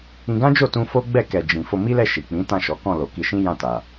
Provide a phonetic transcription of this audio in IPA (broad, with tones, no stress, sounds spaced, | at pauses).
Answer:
ĩ˧ ɡ ã˦ d͡ʒ o˦˨ t ũ˧ f o˦ ɡ͡b ɛ˦˨ k ɛ˨ d͡ʒ ĩ˨ f o˧ m i˦ l ɛ˦˨ ʃ i˨ k͡p ĩ˨˦ t ã˦˨ ʃ ɔ˨˦ k ɔ̃˦˨ l o˨ k i˧ ʃ ĩ˦ j ã˦˨ t a˨